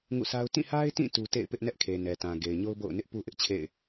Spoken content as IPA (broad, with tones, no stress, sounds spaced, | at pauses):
ŋ ṵ˦˨ sʰ a˦ ʊ̯ t ĩ˦˨ h a˦ ɪ̯ t ĩ˦˨ t u˦ t ḛ˦˨ ɪ̯ p ɪ˦ ʔ n ɛ˦ ʔ kʰ e˨ n ɛ˨ t ã˨ ɡ e˨ ɪ̯ ɲ o˦ ʊ̯ b o̰˦˨ ʊ̯ n ɪ˦ ʔ p u˦ ʔ ɪ˦ ʔ t͡ɕʰ ḛ˦˨ ɪ̯